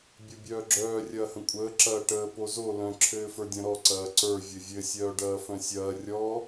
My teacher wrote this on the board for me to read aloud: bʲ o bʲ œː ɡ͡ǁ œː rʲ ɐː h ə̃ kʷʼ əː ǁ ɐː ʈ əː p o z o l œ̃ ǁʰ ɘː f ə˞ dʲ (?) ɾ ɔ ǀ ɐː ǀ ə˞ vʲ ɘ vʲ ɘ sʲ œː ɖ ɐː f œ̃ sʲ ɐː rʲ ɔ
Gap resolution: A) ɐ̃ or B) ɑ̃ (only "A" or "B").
A